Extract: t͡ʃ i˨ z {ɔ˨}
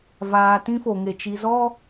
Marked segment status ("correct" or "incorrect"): incorrect